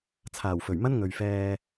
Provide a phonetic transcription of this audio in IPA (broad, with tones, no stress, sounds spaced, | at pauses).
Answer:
t͡sʰ aː˨˩ w f ɵ˨˩ ɥ m ɐ˥ n ŋ ɵ˨ ɥ f ɛː˧